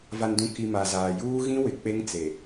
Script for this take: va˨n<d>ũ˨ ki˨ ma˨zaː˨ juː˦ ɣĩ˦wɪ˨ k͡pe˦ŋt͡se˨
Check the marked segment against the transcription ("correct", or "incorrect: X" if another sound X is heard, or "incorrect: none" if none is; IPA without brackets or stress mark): correct